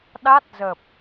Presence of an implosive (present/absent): present